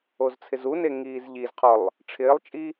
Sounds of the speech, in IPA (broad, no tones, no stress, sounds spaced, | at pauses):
o z t͡sʰ ɪ z u n e ŋ iː z ʎ i z qʰ ɔ lˠ | ʈ͡ʂʰ ɪː lˠ t͡ʃʼ i